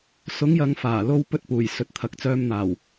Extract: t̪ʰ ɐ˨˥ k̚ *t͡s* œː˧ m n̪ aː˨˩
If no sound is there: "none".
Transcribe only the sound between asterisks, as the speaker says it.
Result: t͡s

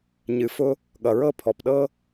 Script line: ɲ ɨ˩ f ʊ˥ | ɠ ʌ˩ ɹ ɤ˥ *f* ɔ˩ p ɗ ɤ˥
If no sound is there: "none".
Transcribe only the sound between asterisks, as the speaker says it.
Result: pʰ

